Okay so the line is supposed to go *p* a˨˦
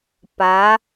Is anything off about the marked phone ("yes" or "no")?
no